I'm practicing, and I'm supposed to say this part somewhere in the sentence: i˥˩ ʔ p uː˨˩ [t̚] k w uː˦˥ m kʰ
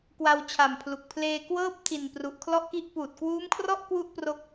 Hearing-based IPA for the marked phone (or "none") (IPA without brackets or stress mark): t̚